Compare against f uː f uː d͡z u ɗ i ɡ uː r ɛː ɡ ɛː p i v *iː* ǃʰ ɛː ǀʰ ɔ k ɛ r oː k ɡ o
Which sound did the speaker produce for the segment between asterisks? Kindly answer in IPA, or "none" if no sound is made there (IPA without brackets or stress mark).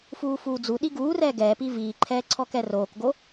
iː